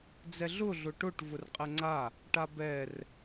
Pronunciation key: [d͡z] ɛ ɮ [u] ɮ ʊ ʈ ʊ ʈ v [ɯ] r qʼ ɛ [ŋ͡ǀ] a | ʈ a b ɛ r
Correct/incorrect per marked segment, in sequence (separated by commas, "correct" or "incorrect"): correct, incorrect, incorrect, correct